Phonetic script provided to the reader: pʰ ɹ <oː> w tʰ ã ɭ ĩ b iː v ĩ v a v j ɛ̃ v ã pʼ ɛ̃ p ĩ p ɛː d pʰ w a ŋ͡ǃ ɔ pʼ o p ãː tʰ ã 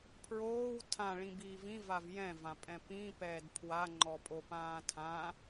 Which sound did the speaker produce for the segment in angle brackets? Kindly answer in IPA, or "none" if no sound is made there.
oː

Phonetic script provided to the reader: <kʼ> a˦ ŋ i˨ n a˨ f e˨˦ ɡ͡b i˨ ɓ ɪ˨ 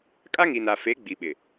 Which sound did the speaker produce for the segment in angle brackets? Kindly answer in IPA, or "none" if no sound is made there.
kʼ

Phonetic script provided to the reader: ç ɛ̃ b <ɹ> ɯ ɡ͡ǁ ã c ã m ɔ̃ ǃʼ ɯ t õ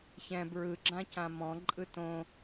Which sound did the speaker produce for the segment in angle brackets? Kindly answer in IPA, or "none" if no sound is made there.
ɹ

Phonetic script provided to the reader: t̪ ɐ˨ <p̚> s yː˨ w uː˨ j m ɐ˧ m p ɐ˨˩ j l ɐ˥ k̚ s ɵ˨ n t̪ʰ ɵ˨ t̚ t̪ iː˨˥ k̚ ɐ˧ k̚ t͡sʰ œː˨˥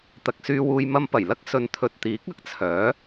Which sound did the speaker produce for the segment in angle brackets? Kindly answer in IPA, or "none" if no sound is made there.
k̚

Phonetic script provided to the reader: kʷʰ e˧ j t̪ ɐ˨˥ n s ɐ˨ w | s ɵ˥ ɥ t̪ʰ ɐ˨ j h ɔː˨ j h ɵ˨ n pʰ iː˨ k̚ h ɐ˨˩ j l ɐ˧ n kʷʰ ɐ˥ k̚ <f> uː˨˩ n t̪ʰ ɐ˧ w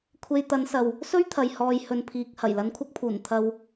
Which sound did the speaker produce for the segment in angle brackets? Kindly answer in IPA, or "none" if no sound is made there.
pʰ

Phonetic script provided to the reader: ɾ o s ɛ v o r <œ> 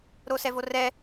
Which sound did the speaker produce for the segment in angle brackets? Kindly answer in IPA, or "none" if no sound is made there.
ɛ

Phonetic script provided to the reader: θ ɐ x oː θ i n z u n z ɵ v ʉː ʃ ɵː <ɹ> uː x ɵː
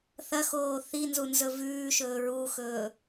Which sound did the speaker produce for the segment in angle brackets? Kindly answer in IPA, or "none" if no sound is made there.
ɹ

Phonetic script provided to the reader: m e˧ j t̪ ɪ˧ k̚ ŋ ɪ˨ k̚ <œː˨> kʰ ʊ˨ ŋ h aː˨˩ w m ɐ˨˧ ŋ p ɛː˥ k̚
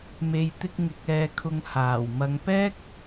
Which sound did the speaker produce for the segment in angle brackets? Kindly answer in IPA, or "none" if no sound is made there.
ɛː˨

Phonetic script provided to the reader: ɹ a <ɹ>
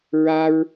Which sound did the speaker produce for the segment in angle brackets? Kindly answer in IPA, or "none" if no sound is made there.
ɹ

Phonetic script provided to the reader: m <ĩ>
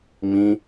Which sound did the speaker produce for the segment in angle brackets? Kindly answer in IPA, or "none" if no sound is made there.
ĩ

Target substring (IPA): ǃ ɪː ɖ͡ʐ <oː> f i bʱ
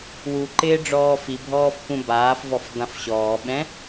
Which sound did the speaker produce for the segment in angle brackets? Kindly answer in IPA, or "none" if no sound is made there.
ɔː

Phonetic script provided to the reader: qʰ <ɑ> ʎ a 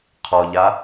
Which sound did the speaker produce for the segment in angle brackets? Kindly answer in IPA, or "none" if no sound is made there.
ɔ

